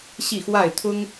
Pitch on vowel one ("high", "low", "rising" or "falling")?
falling